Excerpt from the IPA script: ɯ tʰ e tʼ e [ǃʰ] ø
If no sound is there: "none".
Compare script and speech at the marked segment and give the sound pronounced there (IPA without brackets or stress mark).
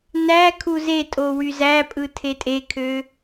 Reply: kʰ